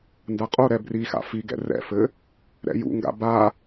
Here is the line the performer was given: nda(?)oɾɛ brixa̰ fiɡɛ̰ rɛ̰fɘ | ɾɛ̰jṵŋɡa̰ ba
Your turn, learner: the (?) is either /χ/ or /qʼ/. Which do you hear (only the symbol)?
qʼ